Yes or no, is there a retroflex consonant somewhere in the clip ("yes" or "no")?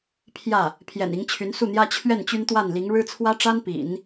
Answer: yes